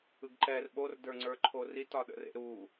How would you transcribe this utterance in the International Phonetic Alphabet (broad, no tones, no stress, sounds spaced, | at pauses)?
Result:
ɯ ɡ ǃ ɛ r ɓ o r d ə˞ ŋ͡ǀ ə˞ ǃʰ o r i t ɒ ɗ ə̰ r ḛ ɾ u